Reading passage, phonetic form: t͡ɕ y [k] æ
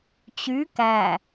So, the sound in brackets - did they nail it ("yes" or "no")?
yes